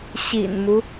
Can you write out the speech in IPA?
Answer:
ɕ ḭ˨˩ n m u˦

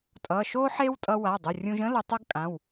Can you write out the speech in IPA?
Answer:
tʼ ʌ˩˧˩ ʃ o˥ ħ e˥ w tʼ ʌ˧ w a˩˧˩ dˤ ə˩˧˩ rʲ ũ˧ ʒ ə̃˥ l ʌ˧ tˤ ʌ˥ ɡ kʼ ã˩˧˩ w

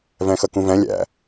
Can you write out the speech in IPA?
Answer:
v æ̃ x ʌ k ũ v æ̃ lʲ æ̰

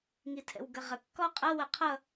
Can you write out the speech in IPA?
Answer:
ŋ i tʰ ɛ̰ w ɡ ɐ ʁ ɐ kː ɔ qʼ ʌ w ɐ qʰ ʌ

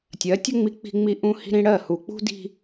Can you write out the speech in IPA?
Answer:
tʲ ɜ˨˦ tʲ ə˦ ŋ͡m i˦ k͡p i̤˦ ŋ͡m i˦ ʔ ũ˦ h i̤˦ ɾ ĩ˦ ɽ ɜ˦˨ h u˨ k͡p ṳ˦ d i̤˦

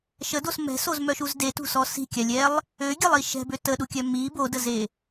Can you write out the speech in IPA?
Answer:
ʃ ə d o s m ɛ̤ s o z m œ ʃ u z d e t ṳ s ɔ s i̤ kʲ a lʲ ɛ lˠ | ø ɡʲ ə lˠ i ʃ ɛ̤ b ø t ə ɗ u kʲ œ m i b o d ə z e

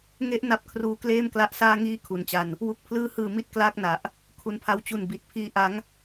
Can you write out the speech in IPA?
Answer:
ŋ e˦˥ ʔ n a˦˥ p̚ kʰ r uː˦˥ k l eː˥˩ m k l a˦˥ ʔ s aː˥˩ ŋ iː˥˩ kʰ u˨˩ n t͡ɕ a˧ n | w u˨˩ k̚ pʰ l ɯː˧ h ɯː˨˩ m i˦˥ t̚ k l aː˥˩ k̚ n a˨˩ ʔ | kʰ u˩˦ n pʰ a˧ w t͡ɕ u˨˩ n b i˨˩ t̚ pʰ iː˧ ʔ a˦˥ ŋ

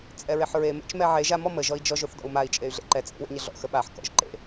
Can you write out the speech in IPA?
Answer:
t͡sʼ ɛ ɹ e ħ ɹ e m ḛ t͡ʃ m ɛ ʕ e ʒ a m ɔ m ə ʒ ɔ i̯ d͡ʒ ɔ ʒ o θ d ɔ̰ u̯ m a i̯ t͡ʃʼ e y̯ ɮ ḛ ǃ ɛ t͡sʼ ḛ w ḛ ɲ ə ɮ ɔ̰ x ə ɓ a ħ k ɔ̰ ʒ ǃ ḛ

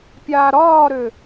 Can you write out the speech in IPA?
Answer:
pʲ aː ɾ ɒː ɾ ø

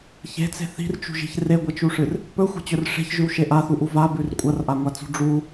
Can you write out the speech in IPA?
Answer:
ç e̤ t͡s e̤ θ i̤ r t͡ʃ ṳ ʒ i̤ ç r e ɡʷ ɐ t͡ʃ u ʂ ɨ r | p ɵ xʷ e̤ t͡ɕ ɵ r ʂ e̤ ç ʒ ʉ w ʃ e ʔ a θ u ʔ u v a b ʉ r kʷʼ ɐ r ʔ a ŋʷ a t͡s ṳ ɖ͡ʐ u

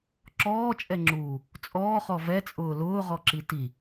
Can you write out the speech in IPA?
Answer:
ǁ ɔː t͡ʃʼ ɛ ŋ͡ǁ uː | t͡sʼ ɔː χ ɔ v ɛ t͡sʼ ʊː l ʊː ʁ ɔ ǁ i t i

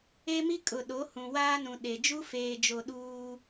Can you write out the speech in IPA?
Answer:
e˦ m i˦ kʼ ʊ˨ ɗ o˨˦ h ũ˨ w aː˦ n ũ˨ ɗ e˨ d͡ʒ u˦ f eː˨ d͡ʒ o˨ ɗ uː˦

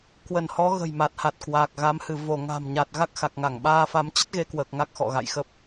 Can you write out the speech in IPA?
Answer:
k w ə˧˩ n h ɔ˨˦ ɣ ə̤˨˩ j m a˨˩ t̚ h a˨˩ t̚ k w a˨˩ k̚ ɣ a˨˦ m h ɨ˧˩ v o˧˩ ŋ a̤˨˩ m ɲ a˨˩ t̚ ɣ a˦˥ k̚ x a˨˩ k̚ ŋ a˧˩ ŋ ɓ aː˧ f a˨˦ m t͡ɕ ə˦˥ t̚ ɣ e˧ k w əː˨˩ k̚ ŋ a˦˥ k̚ x ɔ̰˧˨ ɣ a̰˧˨ j x ə˦˥ p̚

